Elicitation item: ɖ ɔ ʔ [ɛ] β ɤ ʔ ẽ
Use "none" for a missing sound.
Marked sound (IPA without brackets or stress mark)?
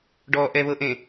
ɛ